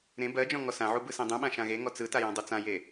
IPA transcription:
ɾẽ bɜd͡ʒɔ̃ ŋɔsãʕu bɯsẽdˤũɓã ʃãɣeŋɔ t͡sɯta jãdˤut͡sãje

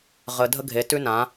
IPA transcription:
ʁə˧ dʱə˦ɡʱe˨˦tʉ˦ nã˨˦

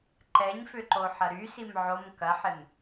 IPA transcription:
ǃɛɲfʏǃoħɐ ɾysim ʕom kɐħɪm

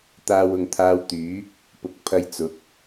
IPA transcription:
t̪aː˧wʊ˨ŋt̪ʰaː˧wt̪yː˨˥ | pʊ˨˥k̚pʰɐ˧j t͡sʊ˨˥k̚

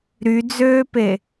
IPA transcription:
ɾyd͡zøːpe

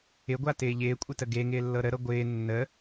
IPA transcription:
ɪɡʷatɪː ʎɪːkʷʼɪtə ɡeŋɪːlːɤ ɾəɾɤ ɡʷɪː nːə

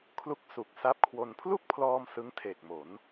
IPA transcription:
kʰlu˦˥k̚su˨˩k̚sa˦˥p̚kʰwo˧n pʰlu˥˩k̚pʰlɔː˧m sɯ˦˥ŋtʰe˨˩k̚mo˩˦n

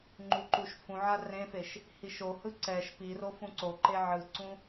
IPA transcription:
ŋ͡ǃuǃuʃfũʕa rẽfeʃ | hiʃohɯ ǀɛʃ piro fũǀoǃe ʕɯǀũ

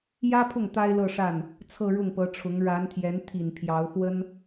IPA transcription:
jä˥pʰʊ˥˩ŋ t̪a˥ɪ̯lɤ˥˧ʂa˥˩n | t͡sʰɤ˥˧ɻʊ˥˩ŋpɤ˧˥ʈ͡ʂʰʊ˧˥ŋ ɻa˧˥nt̪ʰjɛ˧˥nt̪ʰi˨˩n pʰjɑ˧˥ʊ̯xwə˥n

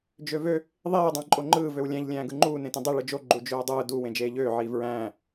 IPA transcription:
d͡ʒøvø | ðˤiː dˤæ̃ǃʼoŋ͡ǃɯː vøwlʲæ̃ʎ lʲæ̃ːɡɯŋ͡ǃuː nẽtẽdˤi ɭɯd͡ʒo ɡ͡ǃud͡ʒøːdˤɯː du wẽd͡ʒeːʎøː ʕiːvɹæ̃ː

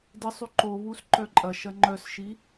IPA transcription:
dɪsˤy ǃoβus ǃœǃʼɐʃɐ ŋ͡ǃœsʃi

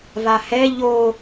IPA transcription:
vahɛ ʎo

